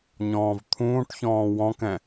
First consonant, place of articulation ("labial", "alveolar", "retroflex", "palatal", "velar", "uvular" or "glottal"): palatal